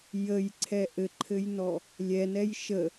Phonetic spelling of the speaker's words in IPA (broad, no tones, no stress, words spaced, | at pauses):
jəjǀʰɛ ʔɘǃʰɘjnɔ | lʲɛnɛj ʃə